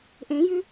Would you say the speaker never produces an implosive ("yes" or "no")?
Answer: yes